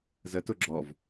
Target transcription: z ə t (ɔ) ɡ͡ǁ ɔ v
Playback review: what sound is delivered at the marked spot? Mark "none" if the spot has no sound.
ʊ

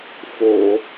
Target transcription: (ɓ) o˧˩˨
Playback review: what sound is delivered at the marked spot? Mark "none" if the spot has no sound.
f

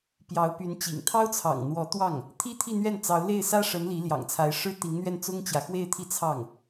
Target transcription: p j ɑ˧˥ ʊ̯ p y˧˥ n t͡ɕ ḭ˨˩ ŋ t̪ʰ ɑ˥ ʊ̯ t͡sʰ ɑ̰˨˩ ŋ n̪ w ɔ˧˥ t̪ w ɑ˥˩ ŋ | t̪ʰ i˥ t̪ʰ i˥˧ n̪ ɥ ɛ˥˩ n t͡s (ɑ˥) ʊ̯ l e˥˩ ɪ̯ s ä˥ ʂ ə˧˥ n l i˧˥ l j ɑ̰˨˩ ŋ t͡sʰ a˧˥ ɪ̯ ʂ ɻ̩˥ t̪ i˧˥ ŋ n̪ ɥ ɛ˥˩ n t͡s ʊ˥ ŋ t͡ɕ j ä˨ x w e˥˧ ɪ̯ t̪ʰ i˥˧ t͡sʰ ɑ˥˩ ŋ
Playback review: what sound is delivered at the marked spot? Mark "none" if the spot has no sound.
ɑ˧˥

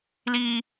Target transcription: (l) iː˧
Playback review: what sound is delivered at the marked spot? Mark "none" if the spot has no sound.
l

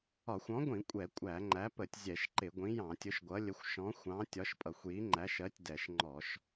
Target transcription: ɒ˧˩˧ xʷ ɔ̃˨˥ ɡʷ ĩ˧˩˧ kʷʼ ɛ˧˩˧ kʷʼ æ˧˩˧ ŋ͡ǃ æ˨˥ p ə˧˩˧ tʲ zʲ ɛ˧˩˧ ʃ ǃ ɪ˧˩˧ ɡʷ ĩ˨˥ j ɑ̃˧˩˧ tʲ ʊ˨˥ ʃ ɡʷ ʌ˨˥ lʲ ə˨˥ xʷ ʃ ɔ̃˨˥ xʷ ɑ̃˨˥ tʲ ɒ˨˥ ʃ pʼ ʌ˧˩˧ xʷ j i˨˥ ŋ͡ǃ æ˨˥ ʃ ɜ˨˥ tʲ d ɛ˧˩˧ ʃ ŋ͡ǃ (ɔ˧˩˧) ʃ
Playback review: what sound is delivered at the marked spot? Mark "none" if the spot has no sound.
ɔ˧˩˧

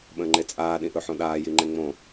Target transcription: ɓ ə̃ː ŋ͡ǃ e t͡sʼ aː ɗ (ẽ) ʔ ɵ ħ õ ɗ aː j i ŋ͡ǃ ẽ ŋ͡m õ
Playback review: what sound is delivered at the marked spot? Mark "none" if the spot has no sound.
ĩ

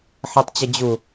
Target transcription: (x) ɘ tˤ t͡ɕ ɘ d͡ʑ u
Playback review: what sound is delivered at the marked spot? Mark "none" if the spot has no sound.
ħ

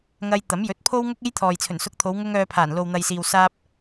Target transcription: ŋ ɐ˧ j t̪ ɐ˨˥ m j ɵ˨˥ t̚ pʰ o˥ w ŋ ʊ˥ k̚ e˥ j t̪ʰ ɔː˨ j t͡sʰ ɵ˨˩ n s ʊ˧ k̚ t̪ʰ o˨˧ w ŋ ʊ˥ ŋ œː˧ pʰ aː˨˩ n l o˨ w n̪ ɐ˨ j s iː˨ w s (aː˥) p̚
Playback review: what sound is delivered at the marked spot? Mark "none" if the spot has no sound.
aː˥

